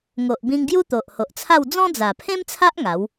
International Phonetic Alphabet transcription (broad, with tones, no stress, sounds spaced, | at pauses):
ŋ o˨ ʔ b ĩ˧ ŋ ɡ j u˦ t̪ o˨ ʔ h o˨ ʔ t͡sʰ a˥˧ w d͡z ɔ̃˦ d͡z a˨˩ pʰ ẽ˦ m t͡sʰ a˦ ʔ ŋ a˨˦ w